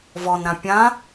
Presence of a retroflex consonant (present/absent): absent